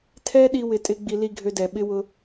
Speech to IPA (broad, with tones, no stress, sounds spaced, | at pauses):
tʰ ɛ˦ ɗ i˦ w ɪ˧ tʼ ɪ˦ ɡ͡b i˧ l i˨ ɡʱ ø˧ d ɛ˨ ɓ ɪ˦ w ʊ˧